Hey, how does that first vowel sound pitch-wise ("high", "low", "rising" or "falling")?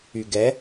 low